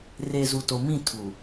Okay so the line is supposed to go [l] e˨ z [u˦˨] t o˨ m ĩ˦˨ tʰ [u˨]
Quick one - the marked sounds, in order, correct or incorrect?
incorrect: r, incorrect: u˨, correct

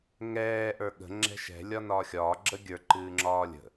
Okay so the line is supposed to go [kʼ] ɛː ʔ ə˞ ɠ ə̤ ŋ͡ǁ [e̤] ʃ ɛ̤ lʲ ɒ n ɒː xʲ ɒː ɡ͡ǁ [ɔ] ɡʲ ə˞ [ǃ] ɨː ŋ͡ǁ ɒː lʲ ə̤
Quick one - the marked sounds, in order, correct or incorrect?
incorrect: ŋ, incorrect: ɛ̤, incorrect: ə, correct

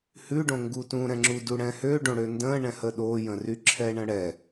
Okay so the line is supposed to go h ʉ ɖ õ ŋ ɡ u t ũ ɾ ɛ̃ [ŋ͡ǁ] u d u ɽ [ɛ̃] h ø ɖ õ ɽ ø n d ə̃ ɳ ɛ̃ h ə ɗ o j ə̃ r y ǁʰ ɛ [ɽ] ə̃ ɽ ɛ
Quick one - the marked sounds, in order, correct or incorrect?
correct, correct, incorrect: ɳ

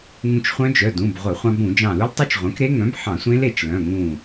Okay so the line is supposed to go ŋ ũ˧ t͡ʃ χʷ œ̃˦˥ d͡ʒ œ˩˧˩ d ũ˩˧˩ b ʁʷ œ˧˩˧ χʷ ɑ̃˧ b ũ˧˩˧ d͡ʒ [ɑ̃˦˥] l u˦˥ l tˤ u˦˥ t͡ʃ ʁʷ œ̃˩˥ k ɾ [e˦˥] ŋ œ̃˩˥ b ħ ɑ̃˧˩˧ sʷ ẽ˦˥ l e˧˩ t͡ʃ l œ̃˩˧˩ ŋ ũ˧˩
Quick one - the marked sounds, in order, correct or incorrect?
incorrect: ɑ̃˧˩, correct

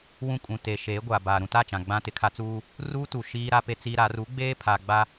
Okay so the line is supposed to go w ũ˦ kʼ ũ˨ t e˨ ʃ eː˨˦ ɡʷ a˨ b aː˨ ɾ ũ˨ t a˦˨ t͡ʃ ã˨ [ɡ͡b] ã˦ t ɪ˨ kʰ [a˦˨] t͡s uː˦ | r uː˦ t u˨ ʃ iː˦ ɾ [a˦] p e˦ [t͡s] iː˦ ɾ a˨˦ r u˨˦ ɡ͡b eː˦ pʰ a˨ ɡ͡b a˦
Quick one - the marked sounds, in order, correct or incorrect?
correct, incorrect: a˦, correct, correct

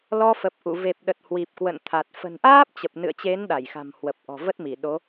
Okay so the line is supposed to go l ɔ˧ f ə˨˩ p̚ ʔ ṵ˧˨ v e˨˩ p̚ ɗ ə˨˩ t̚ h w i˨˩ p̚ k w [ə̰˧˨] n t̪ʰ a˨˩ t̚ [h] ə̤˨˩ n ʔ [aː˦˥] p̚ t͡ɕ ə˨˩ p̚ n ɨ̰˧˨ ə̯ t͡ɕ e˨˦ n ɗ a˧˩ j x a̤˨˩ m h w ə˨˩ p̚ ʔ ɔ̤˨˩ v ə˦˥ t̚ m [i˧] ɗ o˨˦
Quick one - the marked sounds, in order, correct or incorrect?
correct, incorrect: f, correct, incorrect: i˧˩

